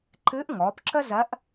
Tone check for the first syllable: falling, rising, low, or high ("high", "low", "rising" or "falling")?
rising